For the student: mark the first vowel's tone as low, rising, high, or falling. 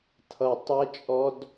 low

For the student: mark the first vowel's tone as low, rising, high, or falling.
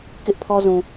high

